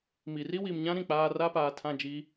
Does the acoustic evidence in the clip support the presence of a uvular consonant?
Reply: no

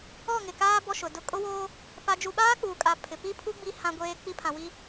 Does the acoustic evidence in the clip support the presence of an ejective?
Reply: yes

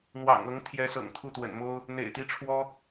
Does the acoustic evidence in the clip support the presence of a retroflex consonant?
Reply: yes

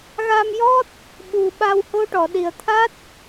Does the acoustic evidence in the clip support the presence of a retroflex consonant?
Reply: yes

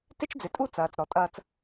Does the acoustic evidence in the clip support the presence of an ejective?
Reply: yes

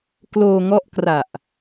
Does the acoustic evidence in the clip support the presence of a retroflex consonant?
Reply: no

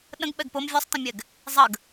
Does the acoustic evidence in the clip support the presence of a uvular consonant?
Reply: no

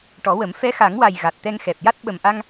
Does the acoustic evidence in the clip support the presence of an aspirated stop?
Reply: no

